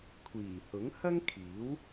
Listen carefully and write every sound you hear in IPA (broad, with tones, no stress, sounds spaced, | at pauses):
kʷʰ iː˨˩ h ʊ˨˥ ŋ h ɐ˥ ŋ kʰ iː˨˥ w